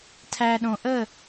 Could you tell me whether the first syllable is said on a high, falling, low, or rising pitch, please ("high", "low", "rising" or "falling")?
low